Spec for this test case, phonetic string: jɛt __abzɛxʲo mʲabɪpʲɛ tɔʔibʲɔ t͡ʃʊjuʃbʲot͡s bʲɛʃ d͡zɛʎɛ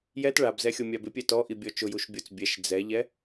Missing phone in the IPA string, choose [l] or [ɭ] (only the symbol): ɭ